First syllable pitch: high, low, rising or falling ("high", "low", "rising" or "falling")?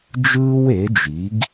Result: high